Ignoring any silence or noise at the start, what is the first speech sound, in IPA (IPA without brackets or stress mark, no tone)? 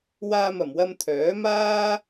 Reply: w